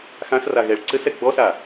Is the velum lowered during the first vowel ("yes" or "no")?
yes